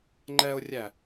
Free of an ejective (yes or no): yes